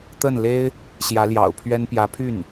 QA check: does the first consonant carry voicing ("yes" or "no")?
no